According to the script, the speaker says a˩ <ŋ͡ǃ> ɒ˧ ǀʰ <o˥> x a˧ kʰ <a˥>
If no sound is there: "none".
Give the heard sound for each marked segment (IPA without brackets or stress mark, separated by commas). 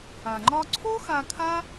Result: ŋ͡ǃ, o˥, a˥